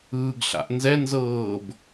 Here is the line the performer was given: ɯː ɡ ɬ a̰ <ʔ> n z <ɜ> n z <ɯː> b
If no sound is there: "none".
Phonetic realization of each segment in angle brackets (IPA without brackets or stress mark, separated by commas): ʔ, ɛ, ɤː